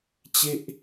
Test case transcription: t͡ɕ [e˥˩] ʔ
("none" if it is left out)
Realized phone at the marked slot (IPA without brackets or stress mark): e˥˩